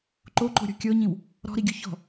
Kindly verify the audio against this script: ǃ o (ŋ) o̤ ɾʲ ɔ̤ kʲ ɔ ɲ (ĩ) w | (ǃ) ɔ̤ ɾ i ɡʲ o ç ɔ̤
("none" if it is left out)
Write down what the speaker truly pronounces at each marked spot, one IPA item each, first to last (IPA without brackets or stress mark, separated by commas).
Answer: ǃ, ĩ, ɾ